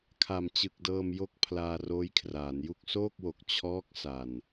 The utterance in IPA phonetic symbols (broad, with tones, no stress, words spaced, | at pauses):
kʰa˨˩mt͡ɕɯ˨˩k̚dɤː˧m jo˦˥k̚ pʰlaː˧roː˦˥jkʰraː˩˦nju˥˩k̚ soː˥˩k̚wo˨˩k̚ t͡ɕʰɔː˦˥k̚ sa˨˩n